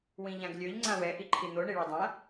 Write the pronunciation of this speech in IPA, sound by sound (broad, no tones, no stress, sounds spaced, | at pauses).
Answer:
w ĩ ʎ ã ɡ lʲ ø ʎ ŋ͡ǀ ã w ɛ ʔ i ǃʰ i n̪ o ɳ i ɭ o dˤ ã